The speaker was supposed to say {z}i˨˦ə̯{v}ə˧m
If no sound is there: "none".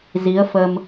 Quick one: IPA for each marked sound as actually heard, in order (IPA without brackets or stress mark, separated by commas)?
z, f